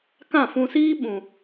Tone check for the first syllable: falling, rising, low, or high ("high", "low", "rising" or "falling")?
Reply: falling